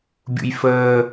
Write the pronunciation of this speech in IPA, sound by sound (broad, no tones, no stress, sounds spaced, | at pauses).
bʲ ṵ j f əː